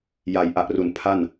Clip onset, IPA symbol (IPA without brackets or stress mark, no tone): j